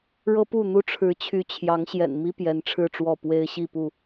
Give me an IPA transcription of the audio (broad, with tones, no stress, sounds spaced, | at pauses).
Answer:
ɻ ɤ˦ p u˥˨ n̪ u˦ ʈ͡ʂʰ ɻ̩˨˦ t͡ɕʰ y˨˦ t͡ɕʰ j ɑ˨˦ ŋ ɕ j ɛ̰˨˩ n m i˦ p j ɛ˨˦ n ʈ͡ʂʰ ɻ̩˥˨ ʈ͡ʂ w ɔ˥˨ p w e˦ ɪ̯ ɕ i˥˨ p u˥˨